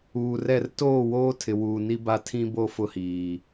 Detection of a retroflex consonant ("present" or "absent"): absent